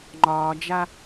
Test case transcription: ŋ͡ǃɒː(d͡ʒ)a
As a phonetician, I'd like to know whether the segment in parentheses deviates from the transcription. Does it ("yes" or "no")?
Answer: no